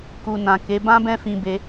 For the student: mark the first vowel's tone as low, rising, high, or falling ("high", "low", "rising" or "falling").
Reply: low